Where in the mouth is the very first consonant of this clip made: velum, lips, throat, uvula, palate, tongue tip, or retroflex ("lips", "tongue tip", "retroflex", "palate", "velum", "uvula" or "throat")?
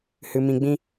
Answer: throat